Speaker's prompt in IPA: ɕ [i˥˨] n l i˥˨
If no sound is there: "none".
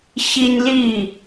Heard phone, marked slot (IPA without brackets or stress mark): i˦